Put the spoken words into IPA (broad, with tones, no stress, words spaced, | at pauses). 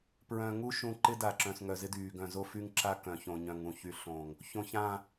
pɹœ̃˨ŋu˦ ʃũ˨ ǃɪ˦da˨ǁœ̃˨s ŋœ˨zɪ˦dyː˨ ɡœ̃˨zo˦ fy˦ŋǁa˦kœ̃˨ çõ˨ɲœ̃˨ŋũ˨çy˨ ɬõ˨ŋ | çõ˨çã˨